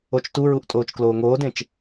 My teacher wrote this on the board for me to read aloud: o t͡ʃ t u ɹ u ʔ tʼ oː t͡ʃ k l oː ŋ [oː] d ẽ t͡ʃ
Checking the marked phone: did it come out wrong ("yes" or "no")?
no